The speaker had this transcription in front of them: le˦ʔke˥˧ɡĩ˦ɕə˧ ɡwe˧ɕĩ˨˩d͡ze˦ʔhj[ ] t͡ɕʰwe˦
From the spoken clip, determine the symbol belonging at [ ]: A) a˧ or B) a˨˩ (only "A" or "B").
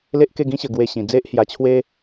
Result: A